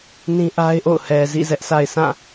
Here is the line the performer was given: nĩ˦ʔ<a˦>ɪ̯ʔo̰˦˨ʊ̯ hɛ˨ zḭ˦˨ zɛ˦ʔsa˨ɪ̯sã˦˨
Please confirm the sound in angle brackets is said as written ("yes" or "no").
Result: yes